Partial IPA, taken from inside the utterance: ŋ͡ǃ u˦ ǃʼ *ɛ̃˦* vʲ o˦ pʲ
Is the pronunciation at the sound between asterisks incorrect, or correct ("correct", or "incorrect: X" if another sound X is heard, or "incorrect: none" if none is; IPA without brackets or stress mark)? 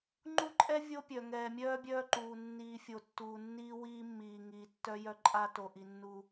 incorrect: ɛ˦